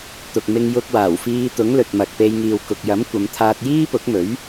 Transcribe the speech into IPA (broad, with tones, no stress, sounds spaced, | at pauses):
t̪ ʊ˨ k̚ m ɪ˧ ŋ j ʊ˧ k̚ w aː˨˩ w f iː˧ t̪ ʊ˨˥ ŋ l ɵ˨ t̚ m ɐ˨ k̚ p e˧ j ŋ iː˨ w k ʊ˨ k̚ j ɐ˨˥ m kʷ ɐ˨˧ m t̪ʰ aː˧ t̚ j iː˥ p ʊ˨˥ k̚ m ɵ˨˥ ɥ